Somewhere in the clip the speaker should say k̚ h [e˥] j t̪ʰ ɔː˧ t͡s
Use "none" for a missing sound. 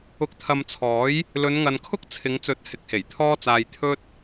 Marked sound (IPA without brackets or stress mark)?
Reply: e˨˩